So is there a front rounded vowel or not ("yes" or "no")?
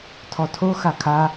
no